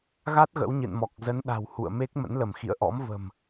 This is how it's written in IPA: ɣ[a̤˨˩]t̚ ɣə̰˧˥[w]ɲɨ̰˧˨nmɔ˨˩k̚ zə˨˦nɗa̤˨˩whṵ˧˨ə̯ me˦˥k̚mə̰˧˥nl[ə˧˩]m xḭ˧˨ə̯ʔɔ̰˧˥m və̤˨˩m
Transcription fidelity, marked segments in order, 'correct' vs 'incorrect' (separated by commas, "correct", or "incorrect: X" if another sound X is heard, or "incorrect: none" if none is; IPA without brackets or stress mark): incorrect: a˦˥, correct, correct